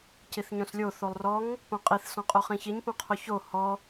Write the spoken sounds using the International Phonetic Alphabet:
c i θ ɲ õ s lʲ o θ o lˠ r ɔ ŋ | p õ qʼ i θ s ɔ̃ qʼ o χ ĩ ç i ɲ p õ qʰ o ç o h ɔ

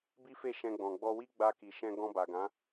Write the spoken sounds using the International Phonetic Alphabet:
b i˦ f e˦˨ ʃ ɛ̃˧ ɡ͡b ɔ̃˨ ɡ͡b ɔ˧ w i˦ ɡ͡b a˧ k i˨ ʃ ɛ̃˧ ɡ ɔ̃˧ b a˨ ɡ ã˨˦

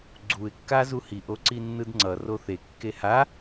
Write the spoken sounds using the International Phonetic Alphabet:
ɡ͡ǀ u ɪ̯ kː a z u h i ʔ o ǀ i nː ɯ d ŋ͡ǀ ʌ r o θ e kː e h a

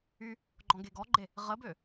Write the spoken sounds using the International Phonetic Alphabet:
y | ɡ͡ǃ ɔ̃ ɡ e ɡ ɔ ɡ͡ǃ e | ʁ ə b ø

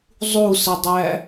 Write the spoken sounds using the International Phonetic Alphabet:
zˤ u s ə dˤ æ

